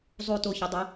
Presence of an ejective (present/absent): absent